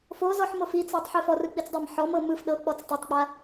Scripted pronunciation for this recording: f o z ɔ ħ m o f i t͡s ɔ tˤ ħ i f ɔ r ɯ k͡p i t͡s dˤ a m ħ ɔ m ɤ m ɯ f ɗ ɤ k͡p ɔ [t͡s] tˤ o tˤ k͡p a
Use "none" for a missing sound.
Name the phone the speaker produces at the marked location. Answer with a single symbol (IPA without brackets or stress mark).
t͡s